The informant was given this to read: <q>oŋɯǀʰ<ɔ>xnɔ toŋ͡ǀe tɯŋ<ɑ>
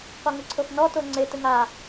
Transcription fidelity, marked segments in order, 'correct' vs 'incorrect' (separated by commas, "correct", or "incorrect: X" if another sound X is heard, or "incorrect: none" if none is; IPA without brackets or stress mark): correct, incorrect: o, incorrect: a